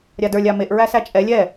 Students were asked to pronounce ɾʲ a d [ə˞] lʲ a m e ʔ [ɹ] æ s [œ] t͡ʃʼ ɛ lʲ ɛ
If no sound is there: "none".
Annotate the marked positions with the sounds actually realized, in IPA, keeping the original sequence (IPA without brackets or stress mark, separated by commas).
ə˞, ɹ, æ